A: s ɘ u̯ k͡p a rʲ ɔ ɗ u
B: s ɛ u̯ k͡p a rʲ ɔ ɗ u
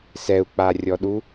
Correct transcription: B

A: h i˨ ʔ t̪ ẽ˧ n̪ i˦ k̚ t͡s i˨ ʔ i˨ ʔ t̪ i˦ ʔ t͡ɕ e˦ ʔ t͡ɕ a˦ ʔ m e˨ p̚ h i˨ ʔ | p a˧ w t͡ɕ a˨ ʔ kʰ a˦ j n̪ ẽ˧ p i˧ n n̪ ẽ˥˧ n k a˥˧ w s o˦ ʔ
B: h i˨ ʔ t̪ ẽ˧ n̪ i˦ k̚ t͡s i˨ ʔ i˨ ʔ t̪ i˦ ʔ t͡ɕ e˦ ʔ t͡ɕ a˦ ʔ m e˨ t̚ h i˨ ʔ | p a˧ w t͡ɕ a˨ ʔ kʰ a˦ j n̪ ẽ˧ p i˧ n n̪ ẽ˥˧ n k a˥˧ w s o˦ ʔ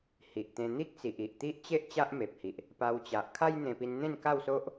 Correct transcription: A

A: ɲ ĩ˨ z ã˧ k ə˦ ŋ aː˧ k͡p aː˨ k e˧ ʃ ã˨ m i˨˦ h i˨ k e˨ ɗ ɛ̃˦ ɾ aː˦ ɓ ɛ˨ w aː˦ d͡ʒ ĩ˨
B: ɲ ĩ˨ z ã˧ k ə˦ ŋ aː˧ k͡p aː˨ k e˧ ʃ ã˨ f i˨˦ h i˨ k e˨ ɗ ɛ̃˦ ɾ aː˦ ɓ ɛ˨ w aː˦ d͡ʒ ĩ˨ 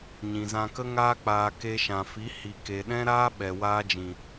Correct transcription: B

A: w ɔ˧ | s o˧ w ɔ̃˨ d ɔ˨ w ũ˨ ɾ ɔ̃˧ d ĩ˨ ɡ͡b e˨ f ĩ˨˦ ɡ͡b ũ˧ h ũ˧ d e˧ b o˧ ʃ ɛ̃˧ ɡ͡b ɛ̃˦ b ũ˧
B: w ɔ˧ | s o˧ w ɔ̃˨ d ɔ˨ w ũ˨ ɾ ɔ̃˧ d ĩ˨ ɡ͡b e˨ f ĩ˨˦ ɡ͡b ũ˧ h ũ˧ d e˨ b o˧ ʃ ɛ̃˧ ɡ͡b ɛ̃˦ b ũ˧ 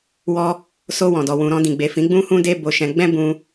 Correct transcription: A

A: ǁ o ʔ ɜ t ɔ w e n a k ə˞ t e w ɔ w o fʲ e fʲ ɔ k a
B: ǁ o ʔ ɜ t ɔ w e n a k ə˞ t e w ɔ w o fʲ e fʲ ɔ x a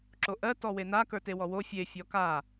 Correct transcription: A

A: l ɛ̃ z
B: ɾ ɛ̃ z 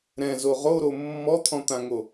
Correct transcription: B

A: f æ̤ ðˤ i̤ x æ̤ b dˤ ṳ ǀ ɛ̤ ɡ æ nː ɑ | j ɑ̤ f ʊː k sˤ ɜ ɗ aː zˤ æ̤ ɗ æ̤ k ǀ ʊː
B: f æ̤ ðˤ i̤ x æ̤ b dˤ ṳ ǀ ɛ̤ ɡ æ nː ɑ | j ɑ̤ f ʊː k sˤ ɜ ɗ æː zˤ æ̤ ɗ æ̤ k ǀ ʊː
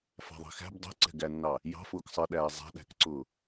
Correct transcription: B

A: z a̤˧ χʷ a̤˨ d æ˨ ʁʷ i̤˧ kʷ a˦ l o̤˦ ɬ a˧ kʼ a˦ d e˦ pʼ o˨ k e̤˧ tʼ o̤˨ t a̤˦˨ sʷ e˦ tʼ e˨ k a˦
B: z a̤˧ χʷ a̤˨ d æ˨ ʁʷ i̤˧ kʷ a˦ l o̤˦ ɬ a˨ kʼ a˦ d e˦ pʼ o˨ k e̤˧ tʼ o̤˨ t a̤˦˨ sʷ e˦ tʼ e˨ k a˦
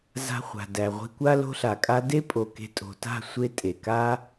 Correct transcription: B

